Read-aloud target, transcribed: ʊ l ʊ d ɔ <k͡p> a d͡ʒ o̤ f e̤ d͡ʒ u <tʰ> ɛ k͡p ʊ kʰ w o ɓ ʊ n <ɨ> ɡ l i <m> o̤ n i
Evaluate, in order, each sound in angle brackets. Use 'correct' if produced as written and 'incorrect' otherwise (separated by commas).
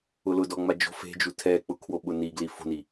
incorrect, correct, incorrect, incorrect